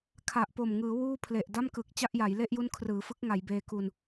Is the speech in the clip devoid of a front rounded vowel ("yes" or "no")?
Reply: yes